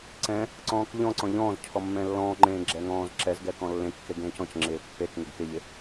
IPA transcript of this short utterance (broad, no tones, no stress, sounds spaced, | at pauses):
ǀ ɛ̃ | ǀ ɔ̃ː k ʎ ɔ̃ ǀ ɔ̃ ʎ ɔ̃ː z cʰ ɔ mː ɛ̃ lː ɔ̃ː ŋ͡ǃ ẽː ɡ͡ǁ ɛ ŋ ɔ̃ː z ǁ ɛ z ɡ ɛ k ɔ̃ lː ẽ kː e ɡ ẽː c ɔ̃ c ŋ͡ǁ ɪː pː e k ŋ ɪ ɡ k ɪ ʎ ɪ